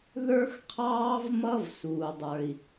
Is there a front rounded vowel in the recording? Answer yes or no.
no